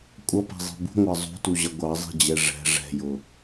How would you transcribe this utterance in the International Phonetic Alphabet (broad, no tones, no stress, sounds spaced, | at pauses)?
kʷʼ ʌ p ɛ̤ zˤ i̤ b ṳ ŋʷ ɑ zˤ ṳ t u ʑ ʌ ɡʷ ɑ zˤ i̤ d͡ʑ ɛ ʐ ɛ̤ ʐ ɛ̤ j ʊ